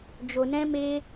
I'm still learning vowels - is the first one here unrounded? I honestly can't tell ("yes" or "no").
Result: no